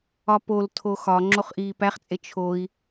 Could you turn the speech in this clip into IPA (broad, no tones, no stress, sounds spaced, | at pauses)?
ɒ p o l tʰ o x ɒ ŋ͡ǁ o χ ʔ iː p æ χ t͡sʼ e t͡ʃʰ o i̯